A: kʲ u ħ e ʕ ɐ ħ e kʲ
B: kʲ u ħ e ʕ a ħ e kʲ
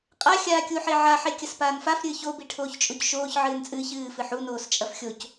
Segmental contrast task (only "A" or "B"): B